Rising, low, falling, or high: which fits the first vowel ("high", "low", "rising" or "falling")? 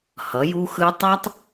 rising